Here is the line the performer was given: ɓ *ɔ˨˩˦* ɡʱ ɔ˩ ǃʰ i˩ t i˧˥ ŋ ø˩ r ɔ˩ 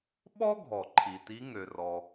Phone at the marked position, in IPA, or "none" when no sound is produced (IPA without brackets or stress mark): ɔ˥